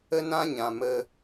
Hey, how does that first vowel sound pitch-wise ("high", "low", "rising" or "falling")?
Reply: high